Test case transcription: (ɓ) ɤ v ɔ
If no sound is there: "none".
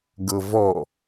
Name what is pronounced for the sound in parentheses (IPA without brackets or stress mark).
ɡ